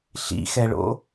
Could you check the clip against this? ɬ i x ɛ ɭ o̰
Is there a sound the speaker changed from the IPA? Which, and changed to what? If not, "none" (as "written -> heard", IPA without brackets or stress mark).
i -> ḭ